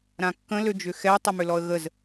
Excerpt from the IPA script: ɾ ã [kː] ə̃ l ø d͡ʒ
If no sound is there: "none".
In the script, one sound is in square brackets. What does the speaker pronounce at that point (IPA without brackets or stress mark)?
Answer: kː